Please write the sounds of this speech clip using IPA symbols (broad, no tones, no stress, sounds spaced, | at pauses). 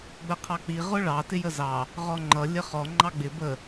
ɡ͡b ə qʰ ɑ k͡p i ʁ ʊ ɭ ɑ t ɪ j ə z ɑ | ʁ ɔ ŋ͡ǃ ʌ lʲ ə χ ɔ ŋ͡ǃ ɑ ɡ͡b ɪ b ə